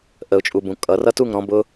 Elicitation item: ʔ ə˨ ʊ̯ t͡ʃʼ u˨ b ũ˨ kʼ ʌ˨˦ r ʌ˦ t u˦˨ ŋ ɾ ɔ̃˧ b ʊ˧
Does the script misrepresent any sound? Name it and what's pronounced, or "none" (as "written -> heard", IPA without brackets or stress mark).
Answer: none